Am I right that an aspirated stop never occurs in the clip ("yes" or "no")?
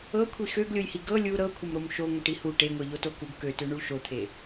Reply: no